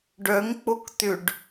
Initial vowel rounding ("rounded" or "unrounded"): rounded